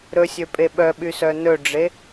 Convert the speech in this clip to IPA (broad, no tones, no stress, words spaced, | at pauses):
ɾɵsʲøpʼe ɓœɓysœ nɵɖ͡ʐe